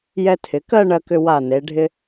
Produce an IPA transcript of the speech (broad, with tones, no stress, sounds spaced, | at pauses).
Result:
j ɛ˧ tʰ ɪ˩˧ k ɜ˥˧ ɳ ɜ˧ k ʏ˧ w a˧˩ n e˩˧ ɖʱ ɪ˧